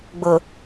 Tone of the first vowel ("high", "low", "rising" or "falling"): low